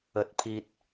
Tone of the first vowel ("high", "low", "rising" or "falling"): low